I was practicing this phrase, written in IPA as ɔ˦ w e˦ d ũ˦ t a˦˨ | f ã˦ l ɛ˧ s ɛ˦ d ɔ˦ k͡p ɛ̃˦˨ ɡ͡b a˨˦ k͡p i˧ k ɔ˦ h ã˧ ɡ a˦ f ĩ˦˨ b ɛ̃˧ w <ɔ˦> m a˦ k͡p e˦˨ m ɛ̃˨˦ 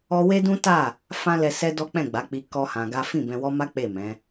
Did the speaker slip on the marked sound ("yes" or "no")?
no